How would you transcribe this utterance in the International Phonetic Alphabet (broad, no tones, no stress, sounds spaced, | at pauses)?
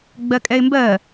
ɡ͡b ɜ kʼ ɛ ɪ̯ m b ɜ